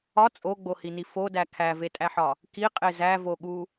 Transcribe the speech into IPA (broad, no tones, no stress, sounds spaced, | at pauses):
ɒ t͡sʼ o ɡ͡b o h i n i f o d æ kʰ æ v e tʼ æ ħ ɒ | k i qʼ e z æ v o ɠ u